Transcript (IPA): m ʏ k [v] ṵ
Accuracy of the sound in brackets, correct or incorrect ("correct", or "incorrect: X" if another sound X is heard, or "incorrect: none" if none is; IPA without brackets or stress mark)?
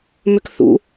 incorrect: θ